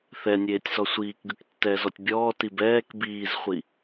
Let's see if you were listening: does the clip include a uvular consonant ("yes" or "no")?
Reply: yes